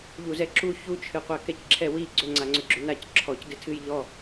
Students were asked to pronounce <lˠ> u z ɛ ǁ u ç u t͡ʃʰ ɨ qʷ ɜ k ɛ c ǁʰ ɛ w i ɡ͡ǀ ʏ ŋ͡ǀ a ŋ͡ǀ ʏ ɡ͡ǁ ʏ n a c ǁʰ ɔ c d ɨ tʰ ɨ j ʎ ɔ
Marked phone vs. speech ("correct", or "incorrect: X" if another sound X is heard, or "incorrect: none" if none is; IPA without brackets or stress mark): incorrect: ʎ